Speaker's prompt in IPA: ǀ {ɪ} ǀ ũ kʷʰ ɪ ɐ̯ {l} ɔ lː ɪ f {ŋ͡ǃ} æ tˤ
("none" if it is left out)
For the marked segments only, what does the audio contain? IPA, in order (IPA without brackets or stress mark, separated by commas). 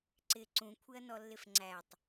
ɪ, n, ŋ͡ǀ